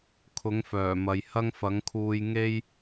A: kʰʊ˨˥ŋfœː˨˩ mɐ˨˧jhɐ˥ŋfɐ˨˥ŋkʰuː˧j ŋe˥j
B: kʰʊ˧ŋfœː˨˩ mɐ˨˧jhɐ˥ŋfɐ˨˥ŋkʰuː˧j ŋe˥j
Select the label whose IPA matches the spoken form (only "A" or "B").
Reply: A